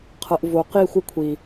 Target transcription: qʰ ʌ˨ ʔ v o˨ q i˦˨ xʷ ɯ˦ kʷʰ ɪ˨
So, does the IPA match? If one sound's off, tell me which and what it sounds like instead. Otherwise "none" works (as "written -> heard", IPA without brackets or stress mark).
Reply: ɪ˨ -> i˨